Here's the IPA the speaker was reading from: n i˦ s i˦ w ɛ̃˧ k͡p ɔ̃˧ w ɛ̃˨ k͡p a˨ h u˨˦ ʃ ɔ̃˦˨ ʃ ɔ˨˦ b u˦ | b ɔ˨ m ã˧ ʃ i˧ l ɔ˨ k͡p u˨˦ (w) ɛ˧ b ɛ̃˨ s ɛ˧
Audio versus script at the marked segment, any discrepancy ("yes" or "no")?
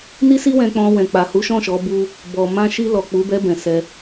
yes